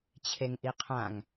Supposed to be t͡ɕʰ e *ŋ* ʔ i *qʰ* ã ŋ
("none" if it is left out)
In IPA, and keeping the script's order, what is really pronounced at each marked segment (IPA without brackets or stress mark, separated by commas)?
ŋ, qʰ